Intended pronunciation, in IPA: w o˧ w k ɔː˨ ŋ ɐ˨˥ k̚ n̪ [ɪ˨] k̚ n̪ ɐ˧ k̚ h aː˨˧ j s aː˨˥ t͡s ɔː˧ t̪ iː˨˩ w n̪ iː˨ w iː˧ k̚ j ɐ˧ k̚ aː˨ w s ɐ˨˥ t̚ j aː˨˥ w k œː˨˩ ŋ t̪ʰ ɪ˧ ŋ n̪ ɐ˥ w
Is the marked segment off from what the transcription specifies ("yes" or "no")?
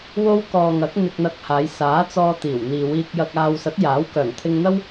yes